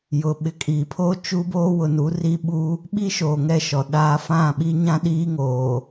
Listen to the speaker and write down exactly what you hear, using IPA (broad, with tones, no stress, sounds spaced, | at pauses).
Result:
j ʊ˨ ɓ ɪ˨ kʼ iː˨ pʰ oː˦ t͡ʃ u˦ b oː˦ w ʊ˨ n u˨˦ r i˦ ɓ u˦ | ɓ i˦ ʃ oː˨ ŋ ɛ˦˨ ʃ ɔ˨ ɗ aː˦ f ã˦˨ ɓ i˦ ɲ ã˦ ɗ iː˦ ŋ oː˨